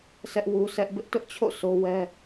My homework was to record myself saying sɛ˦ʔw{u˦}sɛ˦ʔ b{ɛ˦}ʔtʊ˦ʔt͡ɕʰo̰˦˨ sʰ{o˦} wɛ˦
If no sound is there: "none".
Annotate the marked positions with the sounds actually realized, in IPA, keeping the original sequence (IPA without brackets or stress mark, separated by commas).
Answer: u˦, ɪ˦, o˦